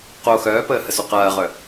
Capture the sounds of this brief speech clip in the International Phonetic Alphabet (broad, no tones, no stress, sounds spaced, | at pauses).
q o x œː p əː h ə s u q ɐː ʁ œ